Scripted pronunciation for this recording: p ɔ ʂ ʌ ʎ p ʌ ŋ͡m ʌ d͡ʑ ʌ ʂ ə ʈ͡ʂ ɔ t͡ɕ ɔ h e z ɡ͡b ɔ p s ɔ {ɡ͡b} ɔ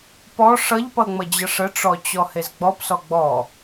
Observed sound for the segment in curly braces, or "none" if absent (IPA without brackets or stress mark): ɡ͡b